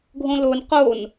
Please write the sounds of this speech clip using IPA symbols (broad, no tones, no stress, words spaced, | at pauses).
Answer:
ɡʱõlon qon